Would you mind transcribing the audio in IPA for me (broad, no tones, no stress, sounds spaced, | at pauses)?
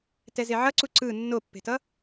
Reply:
t ɛ z e ʕ ʌ ǀ u ǀ ɯ nː o pː e̤ t ʌ